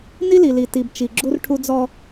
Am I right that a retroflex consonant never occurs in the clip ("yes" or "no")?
no